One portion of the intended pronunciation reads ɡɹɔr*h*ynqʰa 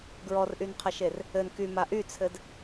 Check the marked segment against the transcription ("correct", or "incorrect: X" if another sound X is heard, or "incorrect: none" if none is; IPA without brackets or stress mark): incorrect: ʔ